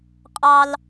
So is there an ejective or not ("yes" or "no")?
yes